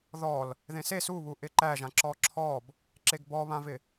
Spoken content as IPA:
ð ɔ l | ð ẽ s e s u β u ʔ ɪ ǃ æ ʒ ã ǁ ɔ ǁʰ ɔ b | ǁ e ɡ b ɔ β ã v ɪ

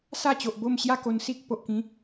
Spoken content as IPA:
s a˥˧ t͡ɕ o˨ ʔ b o˥˧ m ɕ j a˥˧ k o˧ n s i˦ k̚ p o˨ ʔ k ĩ˨˦

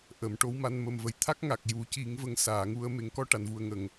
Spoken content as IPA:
ʔ ə˨˩˨ m ʈ o˧˥ w m a˧ n m ə˨˩ m v ə˨˩ j t̪ʰ a˦˥ k̚ ŋ a˨˩ k̚ j u˨˩˦ c i˨˩˦ ŋ v ə˨˩˦ ŋ s aː˨˩˨ ŋ u˧ ə̯ m e˨˩˦ ŋ k ɔ˧ ʈ a˨˩˨ n v u˨˩ ə̯ ŋ ə˨˩˨ ŋ

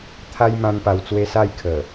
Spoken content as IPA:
t̪ʰ a˦ j m ã˦ n p a˧ w t͡s w e˦ s a˥˧ j kʰ ə˨˩

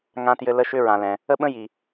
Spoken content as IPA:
ŋ ã˧ t j ɘ˧ l ə˧˥ ʃ ʏ˥ ɹ ã˩ l ɛ̃˩ | ə˥ ɓ ə̃˥ j i˩

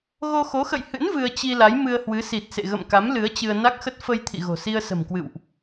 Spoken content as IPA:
ɣ o˧ x o˨˦ x ə̰˧˨ j h ɨ̰˧˥ n v ɨ˧ ə̯ t͡ɕ i˧ l a˨˦ j m ɨ˧ ə̯ h w ɨ˨˦ s i˨˩ t̚ s ḛ˧˨ ɣ ə̰˧˨ m k a˨˦ m l ɨ˨˦ ə̯ t͡ɕ ɨ˧ ə̯ n a˦˥ k̚ x ə˦˥ t̚ f ə˧ j t̪ʰ ḭ˧˨ ɣ o̤˨˩ s i˧ ə̯ s ə̤˨˩ m k w ɨ̰˧˨ w ʔ

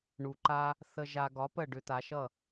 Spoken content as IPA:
ɳ u˩ ǃ a˧ | θ ə˧ ʒ a˧ ɡ ɒ˩˥ p ə˥˩ ɖ ʏ˧ t̪ a˩˥ ʃ ʌ˥˩

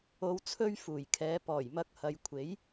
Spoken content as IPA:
o˨˧ w t͡sʰ ɵ˧ ɥ f uː˨˩ j kʰ ɛː˨˧ p ɔː˨˩ j m ɐ˨˥ k̚ h ɐ˨ j kʷʰ e˨˥ j

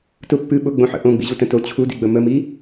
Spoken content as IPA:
t ʊ pː ɨ ɓ ʊ ɡ͡b õ ħ ə̰ ʔ õ ɡ͡b ḭ ʑ u t ə̃ t o t͡ɕʰ u d ḭ ɡ͡b ə m ə m i

